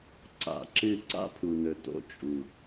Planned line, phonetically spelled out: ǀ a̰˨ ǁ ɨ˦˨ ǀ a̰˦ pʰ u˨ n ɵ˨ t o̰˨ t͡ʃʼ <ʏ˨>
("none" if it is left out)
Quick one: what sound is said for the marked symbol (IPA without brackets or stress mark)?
u˨